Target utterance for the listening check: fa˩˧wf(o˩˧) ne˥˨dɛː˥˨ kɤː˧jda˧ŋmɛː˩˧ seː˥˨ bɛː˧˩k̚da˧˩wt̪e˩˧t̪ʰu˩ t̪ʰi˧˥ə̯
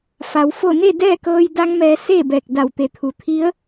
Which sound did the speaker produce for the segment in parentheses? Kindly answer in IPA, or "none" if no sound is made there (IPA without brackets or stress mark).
o˥˨